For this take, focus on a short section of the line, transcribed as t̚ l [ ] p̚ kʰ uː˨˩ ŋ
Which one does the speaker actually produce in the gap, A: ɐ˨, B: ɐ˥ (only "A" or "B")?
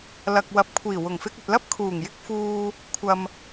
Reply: B